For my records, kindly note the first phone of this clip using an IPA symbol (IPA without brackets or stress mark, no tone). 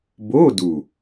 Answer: b